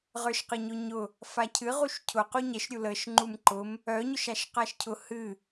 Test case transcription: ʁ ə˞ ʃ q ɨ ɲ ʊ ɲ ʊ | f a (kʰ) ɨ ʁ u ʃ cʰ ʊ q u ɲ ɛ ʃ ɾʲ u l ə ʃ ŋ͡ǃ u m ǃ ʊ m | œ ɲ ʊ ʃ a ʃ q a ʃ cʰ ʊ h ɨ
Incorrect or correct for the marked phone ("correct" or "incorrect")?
incorrect